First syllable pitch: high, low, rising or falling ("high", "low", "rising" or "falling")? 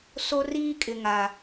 high